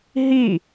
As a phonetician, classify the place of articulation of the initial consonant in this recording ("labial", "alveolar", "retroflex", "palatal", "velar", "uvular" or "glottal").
glottal